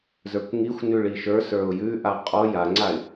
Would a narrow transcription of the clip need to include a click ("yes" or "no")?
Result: yes